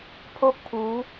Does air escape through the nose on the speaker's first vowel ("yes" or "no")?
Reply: no